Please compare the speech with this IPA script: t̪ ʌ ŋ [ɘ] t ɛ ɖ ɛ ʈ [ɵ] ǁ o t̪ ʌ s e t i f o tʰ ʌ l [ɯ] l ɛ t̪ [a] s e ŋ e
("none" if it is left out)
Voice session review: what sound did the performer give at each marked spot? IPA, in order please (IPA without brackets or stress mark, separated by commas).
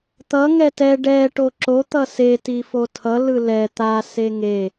ɛ, o, ɯ, a